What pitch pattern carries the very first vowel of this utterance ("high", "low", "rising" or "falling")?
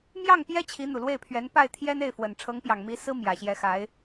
falling